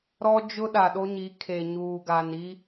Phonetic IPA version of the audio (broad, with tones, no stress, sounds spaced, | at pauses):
ɾ ɔ˦ d͡ʒ ʊ˦ ɗ a˨ ɗ o˦ ɲ i˨˦ kʰ e˨ ɲ uː˨ ɡ a˨ n i˦